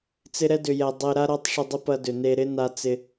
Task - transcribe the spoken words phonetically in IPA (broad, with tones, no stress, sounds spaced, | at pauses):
t͡s ɪ˧ ɾ ɛ˧ d ʏ˨ j ɛ˨ dˤ e˧ ɾ a˦ ɾ a˦ tˤ ʂ ʏ˧ dˤ ɪ˦ p ɐ˧ d ʏ˨ n e˧ ɾ ɪ˦ n a˧ t͡s ɪ˧